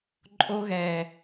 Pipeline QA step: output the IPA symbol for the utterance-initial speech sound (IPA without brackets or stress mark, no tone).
ǃʼ